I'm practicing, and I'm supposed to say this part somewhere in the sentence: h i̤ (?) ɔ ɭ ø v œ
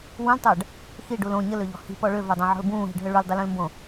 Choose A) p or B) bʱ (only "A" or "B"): A